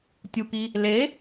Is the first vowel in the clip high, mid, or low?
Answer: high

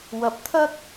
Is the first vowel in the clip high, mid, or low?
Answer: low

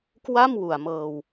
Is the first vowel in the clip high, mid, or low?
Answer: low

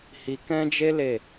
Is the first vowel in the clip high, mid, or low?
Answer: high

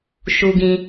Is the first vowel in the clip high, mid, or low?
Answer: high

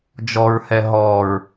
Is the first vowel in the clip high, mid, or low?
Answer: mid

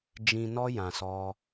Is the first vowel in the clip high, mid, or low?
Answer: high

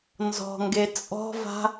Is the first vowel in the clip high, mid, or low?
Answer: mid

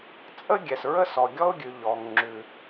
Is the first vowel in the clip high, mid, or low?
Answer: mid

